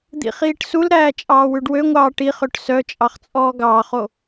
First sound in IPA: d̪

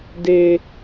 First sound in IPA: d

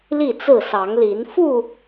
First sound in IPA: l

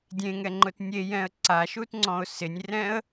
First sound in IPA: dʲ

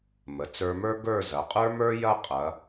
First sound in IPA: m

